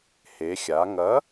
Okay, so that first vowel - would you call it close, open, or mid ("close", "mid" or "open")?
mid